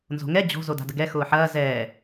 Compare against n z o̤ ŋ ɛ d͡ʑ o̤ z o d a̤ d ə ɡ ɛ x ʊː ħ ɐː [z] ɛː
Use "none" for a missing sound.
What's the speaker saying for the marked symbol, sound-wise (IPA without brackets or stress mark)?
z